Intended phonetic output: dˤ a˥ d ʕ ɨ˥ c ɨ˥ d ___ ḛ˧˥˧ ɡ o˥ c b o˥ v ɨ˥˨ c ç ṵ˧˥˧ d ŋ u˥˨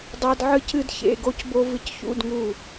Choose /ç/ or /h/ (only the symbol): ç